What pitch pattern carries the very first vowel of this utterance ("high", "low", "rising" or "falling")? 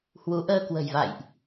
rising